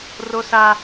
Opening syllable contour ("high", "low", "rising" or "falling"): high